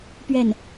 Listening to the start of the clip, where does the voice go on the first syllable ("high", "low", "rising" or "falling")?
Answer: falling